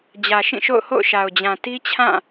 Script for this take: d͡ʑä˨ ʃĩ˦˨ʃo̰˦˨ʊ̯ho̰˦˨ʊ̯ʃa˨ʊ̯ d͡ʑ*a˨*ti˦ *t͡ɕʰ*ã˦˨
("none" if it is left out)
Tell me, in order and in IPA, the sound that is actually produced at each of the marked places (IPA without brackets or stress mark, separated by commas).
ã˨, t͡ɕʰ